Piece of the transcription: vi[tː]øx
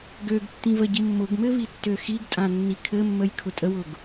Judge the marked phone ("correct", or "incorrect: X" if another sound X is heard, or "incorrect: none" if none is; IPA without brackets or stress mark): correct